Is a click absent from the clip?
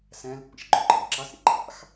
no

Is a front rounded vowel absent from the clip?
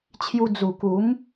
yes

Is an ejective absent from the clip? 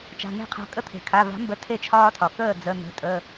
no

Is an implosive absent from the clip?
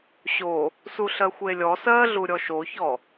yes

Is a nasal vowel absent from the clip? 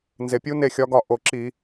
yes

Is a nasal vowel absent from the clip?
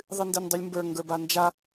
yes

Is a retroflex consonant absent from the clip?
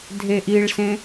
no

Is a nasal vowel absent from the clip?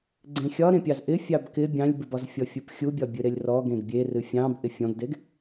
no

